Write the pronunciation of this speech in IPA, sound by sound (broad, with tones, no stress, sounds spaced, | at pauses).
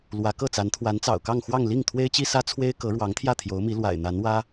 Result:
l w ä˧˥ k ɤ˥˩ t͡s a˧˥ n t̪ʰ w a˧˥ n t͡s ɑ̰˨˩ ʊ̯ k ɑ˥˧ ŋ x w ɑ˥˧ ŋ l i˥˩ ŋ t̪ʰ w e˥ ɪ̯ t͡ɕ i˥ s ä˥ t͡sʰ w e˥ ɪ̯ k ɤ˧˥ ɻ w ɑ˧˥ ŋ t̪ʰ j ä˥˩ t̪ʰ j o˧˥ ʊ̯ m i˧˥ l w a̰˨˩ ɪ̯ n̪ a˧˥ n w ä˥